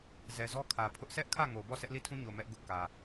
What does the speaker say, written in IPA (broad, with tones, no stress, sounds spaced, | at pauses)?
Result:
z ɛ˨ z ɔ˦ kʰ ä˨ pʰ ʊ˦ ʔ sʰ ɛ˦ ʔ kʰ ä˦˨ ŋ o˨ b ɔ˦˨ sʰ ɛ˦ ʔ l i˦˨ tʰ ũ˦ ɲ o˨ m ɛ˦ ʔ ɡ ʊ˦ ʔ k ä˨